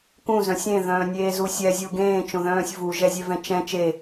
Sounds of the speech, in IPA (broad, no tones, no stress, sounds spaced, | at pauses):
k ũ z œ̃ sʲ ẽ ð œ̃ː nʲ eː z u sʲ ɛ zʲ u ɡ ẽː t͡ʃ õ ð œ̃ː sʲ v u ʒ ɛ zʲ ɛ v ɛ̃ t͡ʃ ɛ̃ t͡ʃ e